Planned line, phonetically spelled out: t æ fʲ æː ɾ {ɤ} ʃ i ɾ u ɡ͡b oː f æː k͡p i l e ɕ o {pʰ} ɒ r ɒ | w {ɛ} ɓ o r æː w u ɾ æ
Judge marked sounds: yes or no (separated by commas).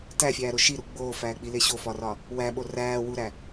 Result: no, no, no